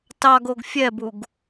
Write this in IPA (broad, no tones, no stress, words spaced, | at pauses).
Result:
tɑɡoɡ fʲɛbuɡ